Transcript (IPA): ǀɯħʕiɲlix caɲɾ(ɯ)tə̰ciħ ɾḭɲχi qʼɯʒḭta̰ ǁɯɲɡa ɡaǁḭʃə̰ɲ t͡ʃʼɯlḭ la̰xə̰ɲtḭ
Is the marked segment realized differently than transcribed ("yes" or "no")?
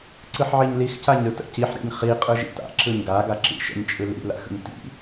no